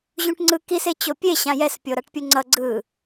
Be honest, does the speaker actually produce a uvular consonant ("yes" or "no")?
no